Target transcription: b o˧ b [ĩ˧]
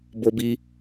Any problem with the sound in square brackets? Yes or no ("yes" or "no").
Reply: yes